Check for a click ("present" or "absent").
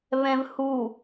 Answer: absent